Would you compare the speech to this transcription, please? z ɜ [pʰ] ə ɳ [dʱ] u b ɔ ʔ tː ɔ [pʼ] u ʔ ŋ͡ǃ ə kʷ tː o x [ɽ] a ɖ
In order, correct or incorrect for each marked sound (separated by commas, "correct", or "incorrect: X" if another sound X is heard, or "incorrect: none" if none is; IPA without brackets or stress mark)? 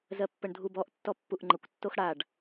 incorrect: pː, correct, incorrect: pː, correct